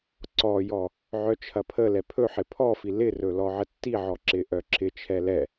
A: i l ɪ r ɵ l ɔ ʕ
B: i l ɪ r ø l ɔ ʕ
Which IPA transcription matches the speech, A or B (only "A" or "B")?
A